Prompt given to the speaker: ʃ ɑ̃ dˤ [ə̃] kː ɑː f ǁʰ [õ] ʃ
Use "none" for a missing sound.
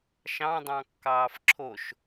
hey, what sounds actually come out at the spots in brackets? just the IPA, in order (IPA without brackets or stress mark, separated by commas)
ɑ̃, o